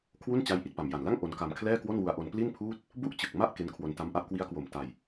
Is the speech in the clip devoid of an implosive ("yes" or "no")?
yes